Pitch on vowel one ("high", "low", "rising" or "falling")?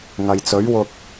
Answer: low